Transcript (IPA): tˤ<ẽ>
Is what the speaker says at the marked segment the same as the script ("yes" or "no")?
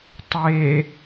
no